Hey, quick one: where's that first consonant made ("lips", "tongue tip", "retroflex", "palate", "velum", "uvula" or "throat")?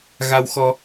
velum